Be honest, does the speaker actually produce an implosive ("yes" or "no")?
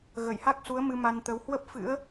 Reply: no